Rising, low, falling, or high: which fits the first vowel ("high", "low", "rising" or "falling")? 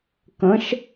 rising